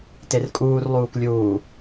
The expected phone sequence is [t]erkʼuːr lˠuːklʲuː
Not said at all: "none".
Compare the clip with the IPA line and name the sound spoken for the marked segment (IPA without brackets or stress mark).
t